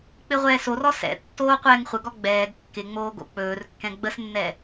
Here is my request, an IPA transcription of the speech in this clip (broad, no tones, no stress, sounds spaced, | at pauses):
k͡p ɪ ʁʷ ɛː s o r ɔ s ɛ̰ tː oː qʷ ɛː ŋ χʷ ə ɡ ɔ ɡ͡b ɛː ɡ kː ɪ ŋ͡m oː ɡ o̰ k͡p ɵː r kː ɛ̃ ɡ͡b ə s nː ɛ